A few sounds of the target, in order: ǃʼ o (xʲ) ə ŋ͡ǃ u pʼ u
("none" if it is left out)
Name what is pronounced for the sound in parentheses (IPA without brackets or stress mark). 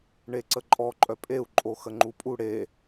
x